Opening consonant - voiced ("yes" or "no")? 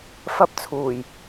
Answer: no